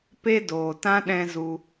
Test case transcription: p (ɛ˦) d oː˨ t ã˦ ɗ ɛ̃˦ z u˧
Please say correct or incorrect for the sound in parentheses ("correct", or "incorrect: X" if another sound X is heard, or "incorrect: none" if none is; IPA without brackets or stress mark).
incorrect: e˦